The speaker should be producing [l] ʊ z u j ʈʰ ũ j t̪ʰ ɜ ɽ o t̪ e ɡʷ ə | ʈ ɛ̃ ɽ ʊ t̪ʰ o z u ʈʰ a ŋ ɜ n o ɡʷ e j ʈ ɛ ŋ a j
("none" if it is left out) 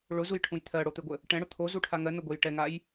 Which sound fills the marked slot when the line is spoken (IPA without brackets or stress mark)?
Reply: ɭ